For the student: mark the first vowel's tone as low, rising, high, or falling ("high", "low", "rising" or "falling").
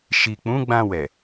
low